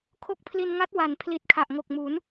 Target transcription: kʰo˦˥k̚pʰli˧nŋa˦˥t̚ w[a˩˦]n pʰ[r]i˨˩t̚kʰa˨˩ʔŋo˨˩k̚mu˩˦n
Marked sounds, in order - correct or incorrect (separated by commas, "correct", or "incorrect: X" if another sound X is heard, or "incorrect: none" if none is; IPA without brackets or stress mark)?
correct, incorrect: l